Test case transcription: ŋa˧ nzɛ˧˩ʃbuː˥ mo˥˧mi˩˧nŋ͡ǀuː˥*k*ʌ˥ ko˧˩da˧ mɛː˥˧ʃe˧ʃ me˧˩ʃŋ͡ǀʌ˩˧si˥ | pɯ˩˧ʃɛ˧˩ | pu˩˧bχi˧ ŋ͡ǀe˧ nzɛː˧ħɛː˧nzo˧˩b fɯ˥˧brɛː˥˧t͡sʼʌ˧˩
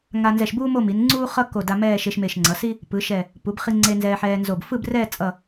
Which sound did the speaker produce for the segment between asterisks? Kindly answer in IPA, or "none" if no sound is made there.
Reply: χ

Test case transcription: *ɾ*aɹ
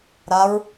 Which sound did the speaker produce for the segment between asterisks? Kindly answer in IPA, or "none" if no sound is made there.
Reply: ɾ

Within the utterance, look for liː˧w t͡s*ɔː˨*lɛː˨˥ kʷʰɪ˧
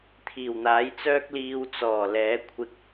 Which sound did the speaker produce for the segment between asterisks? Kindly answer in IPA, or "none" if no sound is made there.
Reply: ɔː˨˩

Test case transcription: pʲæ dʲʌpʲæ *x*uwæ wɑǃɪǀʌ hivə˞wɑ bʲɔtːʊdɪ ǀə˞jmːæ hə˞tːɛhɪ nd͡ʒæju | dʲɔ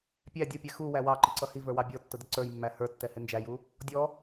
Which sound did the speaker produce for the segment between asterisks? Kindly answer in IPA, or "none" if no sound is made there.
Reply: x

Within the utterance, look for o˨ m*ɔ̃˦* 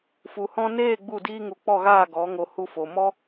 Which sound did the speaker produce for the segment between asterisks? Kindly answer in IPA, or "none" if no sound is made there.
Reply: ɔ˦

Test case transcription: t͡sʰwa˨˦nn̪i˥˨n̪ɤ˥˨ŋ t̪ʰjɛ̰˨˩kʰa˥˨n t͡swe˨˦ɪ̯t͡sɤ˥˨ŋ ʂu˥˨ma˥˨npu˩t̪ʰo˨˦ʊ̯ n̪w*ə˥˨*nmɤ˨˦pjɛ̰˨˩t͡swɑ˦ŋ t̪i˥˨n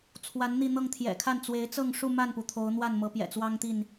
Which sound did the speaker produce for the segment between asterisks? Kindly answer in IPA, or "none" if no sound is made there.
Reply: a˥˨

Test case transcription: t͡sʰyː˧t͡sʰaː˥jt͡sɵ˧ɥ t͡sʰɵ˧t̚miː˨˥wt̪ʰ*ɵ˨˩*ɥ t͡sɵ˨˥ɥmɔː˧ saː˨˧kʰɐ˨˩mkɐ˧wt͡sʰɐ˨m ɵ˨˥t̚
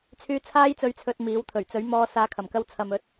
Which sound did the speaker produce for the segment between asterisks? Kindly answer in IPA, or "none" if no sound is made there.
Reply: ɵ˨˩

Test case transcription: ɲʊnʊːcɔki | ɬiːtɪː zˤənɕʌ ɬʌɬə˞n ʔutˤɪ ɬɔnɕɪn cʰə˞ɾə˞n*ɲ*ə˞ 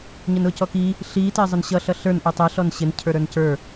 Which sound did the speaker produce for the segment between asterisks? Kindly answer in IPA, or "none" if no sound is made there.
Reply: c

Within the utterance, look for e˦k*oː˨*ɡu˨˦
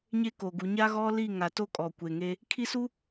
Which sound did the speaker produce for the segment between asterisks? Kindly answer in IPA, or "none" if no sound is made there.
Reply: o˨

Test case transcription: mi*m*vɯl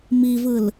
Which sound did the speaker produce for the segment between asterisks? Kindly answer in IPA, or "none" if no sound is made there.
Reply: none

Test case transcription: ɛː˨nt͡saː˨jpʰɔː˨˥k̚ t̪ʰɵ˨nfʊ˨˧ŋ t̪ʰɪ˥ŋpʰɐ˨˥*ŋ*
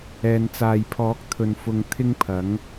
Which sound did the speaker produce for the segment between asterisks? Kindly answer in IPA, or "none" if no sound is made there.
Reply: ŋ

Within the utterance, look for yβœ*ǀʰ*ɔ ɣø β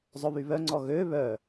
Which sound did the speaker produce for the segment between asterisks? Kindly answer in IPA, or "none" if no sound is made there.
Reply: ŋ͡ǀ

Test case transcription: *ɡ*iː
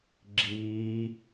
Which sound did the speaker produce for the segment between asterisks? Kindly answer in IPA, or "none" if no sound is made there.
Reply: ɡ͡ǁ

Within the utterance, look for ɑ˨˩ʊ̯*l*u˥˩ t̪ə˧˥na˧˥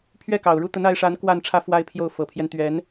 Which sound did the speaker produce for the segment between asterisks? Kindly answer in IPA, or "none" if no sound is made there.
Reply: ɻ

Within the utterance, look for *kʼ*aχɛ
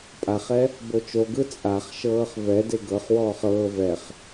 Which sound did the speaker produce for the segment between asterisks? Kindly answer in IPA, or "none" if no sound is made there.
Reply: pʼ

